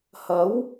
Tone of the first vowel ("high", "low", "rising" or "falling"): rising